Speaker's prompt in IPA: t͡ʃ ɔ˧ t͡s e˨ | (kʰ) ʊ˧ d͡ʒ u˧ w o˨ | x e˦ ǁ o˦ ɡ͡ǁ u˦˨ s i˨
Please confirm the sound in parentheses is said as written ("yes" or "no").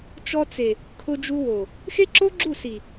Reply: yes